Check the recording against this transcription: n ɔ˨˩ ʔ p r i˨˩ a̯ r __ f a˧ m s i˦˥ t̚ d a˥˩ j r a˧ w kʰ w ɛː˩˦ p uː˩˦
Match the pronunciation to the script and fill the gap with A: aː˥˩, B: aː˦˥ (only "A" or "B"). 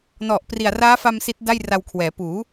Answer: B